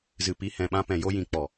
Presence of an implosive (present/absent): present